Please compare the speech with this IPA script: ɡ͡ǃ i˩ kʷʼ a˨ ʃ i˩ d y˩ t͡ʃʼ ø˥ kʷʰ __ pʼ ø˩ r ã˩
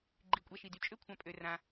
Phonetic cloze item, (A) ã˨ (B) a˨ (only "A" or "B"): A